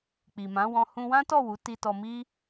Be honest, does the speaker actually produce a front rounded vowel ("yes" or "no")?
no